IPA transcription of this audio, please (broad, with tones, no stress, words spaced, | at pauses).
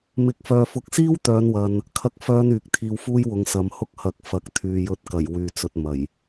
mɪ˨˥k̚fœː˨fʊ˨˥k̚ siː˥wt̪œː˨˧nwɐ˨n | kʰɐ˥k̚fœː˥n yː˨˥k̚t̪ʰiː˧wfuː˥jwʊ˨˧ŋ sɐ˨˧mhʊ˥k̚ hɐ˨˥k̚ fɐ˨˥k̚t̪ʰyː˨ jɵ˨˥t̚kɐ˨˩j wyː˧t͡sɵ˧t̚ mɐ˨˩j